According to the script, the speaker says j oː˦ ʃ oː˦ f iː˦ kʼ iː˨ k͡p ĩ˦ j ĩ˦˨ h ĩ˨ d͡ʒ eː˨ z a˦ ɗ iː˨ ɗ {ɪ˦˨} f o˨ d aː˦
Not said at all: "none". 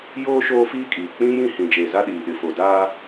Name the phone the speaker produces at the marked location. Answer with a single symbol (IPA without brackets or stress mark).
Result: ɪ˨